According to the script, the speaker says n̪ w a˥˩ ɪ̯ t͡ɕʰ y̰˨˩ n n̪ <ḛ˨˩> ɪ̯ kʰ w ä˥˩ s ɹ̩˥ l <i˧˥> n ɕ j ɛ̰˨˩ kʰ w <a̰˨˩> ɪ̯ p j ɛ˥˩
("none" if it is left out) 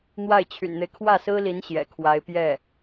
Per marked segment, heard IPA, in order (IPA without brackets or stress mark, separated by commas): e˦, i˧˥, a˧˥